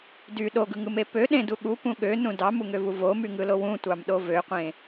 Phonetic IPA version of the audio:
d y ɗ o ɡ ɯ ŋ ɯ m e p ø ɗ ẽ d u ɠ u p ũ ɠ ø n ũ d ɑ m u ŋ ø v u v o m y ŋ ɯ l o w ũ tʷ ɑ m ɗ o v ø qʷ ẽ

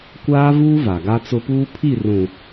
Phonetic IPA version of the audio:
kʷ aː˦ v uː˦ v a˨ ɡ a˦ t͡s ʊ˦ p uː˦ pʰ i˦˨ r ũ˨

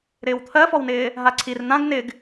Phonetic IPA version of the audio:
ɾ ɪː w t̪ʰ ɜ f ɔ w n ɪː | ɦ a ǀʰ i r n̪ ã ɡ n ɪ ɡ

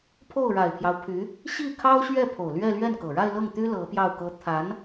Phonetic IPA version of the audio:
pʰ o˥˩ ʊ̯ ɻ a˨˩ ɪ̯ pʰ j ɑ˦ ʊ̯ pʰ y˧˥ | ɕ i˥˩ kʰ ɑ˥ ʊ̯ ɕ ɥ ɛ˥˩ pʰ o˨˩ ʊ̯ l ɥ ɛ˥˧ l ɥ ɛ˥˩ n k ɤ˨˩ ɻ a˥˧ ɪ̯ l ɤ˥˩ ŋ t̪ y˥ l ɤ˧˥ p j ɑ˥˩ ʊ̯ k ɤ˥ t̪ʰ a˧˥ n

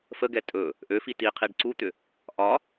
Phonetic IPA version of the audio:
f ə ɡ ɛ tʼ ɵ | ʔ ø f i t i qʰ i ɖ ǀ u t̪ ʏ | ʔ ɒ

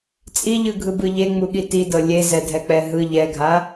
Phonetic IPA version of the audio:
t͡sʼ i ʎ ɯ ɡʱ ɯ b ɯ ʎ e ŋ͡m u ɠ i t i d ɤ lʲ e z ɛ dʱ ɛ k͡p ɛ ɦ ɯ ʎ ɛ ɡʱ a

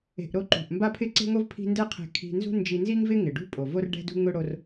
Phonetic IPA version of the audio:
e̤˧ ʔ ɾ o˥ ǃ ṳ˩ ʔ m b a˥ pʰ ɪ˥ ǀ e̤˥ ŋ o˥ v pʰ i̤˥ n d ɛ˥ qʰ ɛ̤˧ kʰ i̤˧ n z ṳ˥ n d͡ʒ i˧ n z i˥ ŋ v ɪ˥ ŋ ɪ˩ ɖ ṳ˥ pʼ o˩ v o˥ r ɖ ɛ̤˥ d ṳ˥ ŋ ʊ˥ ɽ o˧ r

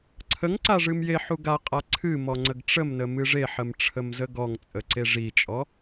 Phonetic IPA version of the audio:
ǀʰ ə ŋ ǀ a ʐ ɨ m j e ħ u ɡ a qʼ a ǀʰ ɨ m ɔ ŋ͡ǀ ə ɡ ʈ͡ʂ ə m n ə m ɨ ʐ e ħ ə m ʈ͡ʂʰ ə m z ə ɡ ɔ ŋ t͡sʼ ə ǀ e ʐ i t͡ʃʼ ɔ

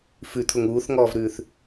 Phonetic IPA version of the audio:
f ʉ t̪ʰ ʊ ŋ uː θ ŋ ɔː v ɾ ʉː θ

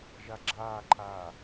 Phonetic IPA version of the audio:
ʒ a ɡ͡ǁ aː ǃʰ aː

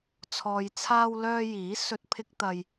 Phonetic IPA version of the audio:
t͡sʰ ɔː˨ j t͡sʰ aː˧ w l œː˧ j iː˨˥ s ɵ˧ t̚ pʰ ɪ˧ k̚ t̪ ɐ˧ j

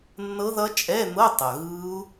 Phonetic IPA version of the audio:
nː ɤ˦˥ ð ʌ˦˥ t͡ʃʼ ɛ˧˥˧ n̪ ɤ˧˥˧ tˤ ʌ˩ ɣ ɯ˦˥ u̯

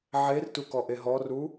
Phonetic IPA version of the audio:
ʕ e r t u k ɔ ʔ e ɦ ɔ r u

